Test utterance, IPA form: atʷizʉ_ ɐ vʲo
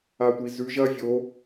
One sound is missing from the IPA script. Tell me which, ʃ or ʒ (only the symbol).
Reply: ʒ